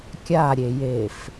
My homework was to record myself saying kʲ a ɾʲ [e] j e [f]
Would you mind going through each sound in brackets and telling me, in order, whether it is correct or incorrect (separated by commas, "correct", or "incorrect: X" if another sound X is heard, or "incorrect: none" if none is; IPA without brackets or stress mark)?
correct, correct